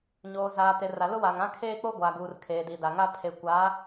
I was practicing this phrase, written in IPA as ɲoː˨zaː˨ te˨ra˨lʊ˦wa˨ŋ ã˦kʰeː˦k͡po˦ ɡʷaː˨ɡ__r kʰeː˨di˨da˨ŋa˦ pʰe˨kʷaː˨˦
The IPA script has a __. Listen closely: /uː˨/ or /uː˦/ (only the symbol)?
uː˨